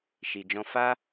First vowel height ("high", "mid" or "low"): high